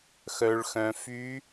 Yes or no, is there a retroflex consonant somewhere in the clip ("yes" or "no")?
yes